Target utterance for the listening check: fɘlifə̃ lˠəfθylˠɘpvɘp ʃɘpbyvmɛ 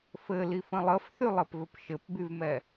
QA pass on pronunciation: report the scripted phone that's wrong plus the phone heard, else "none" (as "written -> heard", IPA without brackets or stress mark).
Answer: none